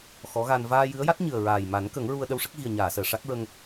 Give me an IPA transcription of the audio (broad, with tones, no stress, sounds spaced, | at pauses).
x ɔ˧˥ ɣ a˧ n v aː˧ j ɨ˧˥ ə̯ j a˦˥ t̚ ɲ ɨ˨˩ ə̯ ɹ aː˨˩ j m a˨˩˦ n k ə˨˩˦ ŋ ɹ u˧ ə̯ ɗ ə˧ w ʂ ə˦˥ k̚ ɣ i˨˩ ə̯ ɲ aː˨˩˨ s əː˨˩˨ ʂ a˦˥ k̚ ɹ ə˧ ŋ